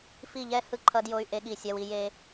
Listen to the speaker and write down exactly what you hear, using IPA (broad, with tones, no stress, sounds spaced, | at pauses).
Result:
f i˦˨ ʎ ɛ˦ h ɯ˦˨ ǃʰ ʌ˦ d j o˦ y̯ ʔ e˦ ɠ i˦˨ sʲ a˦ w i˦ j e˦